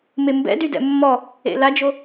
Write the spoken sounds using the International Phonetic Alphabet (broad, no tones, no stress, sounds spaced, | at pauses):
m e m b ɛ̰ d y d ɛ̰ mː ɔ | ḛ l a d͡ʒ o